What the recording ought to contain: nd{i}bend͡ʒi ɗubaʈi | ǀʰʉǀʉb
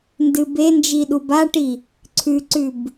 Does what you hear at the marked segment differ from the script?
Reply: yes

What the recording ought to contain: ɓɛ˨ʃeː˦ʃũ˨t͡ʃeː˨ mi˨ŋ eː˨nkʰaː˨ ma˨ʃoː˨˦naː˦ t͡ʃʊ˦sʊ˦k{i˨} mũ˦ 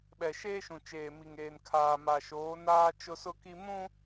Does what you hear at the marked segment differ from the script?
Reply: yes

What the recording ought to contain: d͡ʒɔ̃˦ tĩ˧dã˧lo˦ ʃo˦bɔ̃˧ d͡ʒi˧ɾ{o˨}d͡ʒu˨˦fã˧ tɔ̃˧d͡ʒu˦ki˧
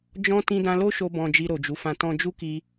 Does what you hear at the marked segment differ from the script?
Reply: no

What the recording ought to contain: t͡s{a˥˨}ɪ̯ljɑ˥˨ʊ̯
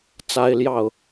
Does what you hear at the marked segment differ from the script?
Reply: yes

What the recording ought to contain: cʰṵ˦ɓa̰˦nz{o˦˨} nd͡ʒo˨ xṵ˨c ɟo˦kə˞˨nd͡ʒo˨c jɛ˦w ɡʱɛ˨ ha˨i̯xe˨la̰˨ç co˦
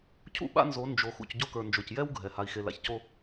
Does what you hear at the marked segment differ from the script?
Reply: yes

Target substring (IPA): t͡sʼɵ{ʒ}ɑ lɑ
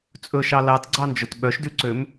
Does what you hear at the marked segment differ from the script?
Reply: yes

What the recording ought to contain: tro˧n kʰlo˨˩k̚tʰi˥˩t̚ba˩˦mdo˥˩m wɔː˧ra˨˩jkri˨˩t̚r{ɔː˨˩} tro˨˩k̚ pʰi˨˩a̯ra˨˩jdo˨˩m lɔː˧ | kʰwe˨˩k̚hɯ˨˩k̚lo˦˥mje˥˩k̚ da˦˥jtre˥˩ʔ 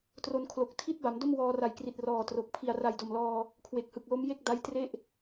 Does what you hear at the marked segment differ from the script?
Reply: no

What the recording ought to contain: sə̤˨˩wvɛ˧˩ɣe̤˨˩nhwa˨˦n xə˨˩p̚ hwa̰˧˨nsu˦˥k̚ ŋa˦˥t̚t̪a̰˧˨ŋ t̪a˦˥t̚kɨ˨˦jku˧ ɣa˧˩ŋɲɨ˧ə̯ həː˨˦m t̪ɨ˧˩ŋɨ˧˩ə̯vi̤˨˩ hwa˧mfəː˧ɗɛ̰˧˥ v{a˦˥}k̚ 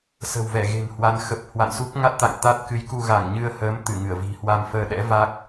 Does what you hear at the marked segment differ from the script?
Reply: no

